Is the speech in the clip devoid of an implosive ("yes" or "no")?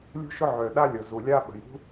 no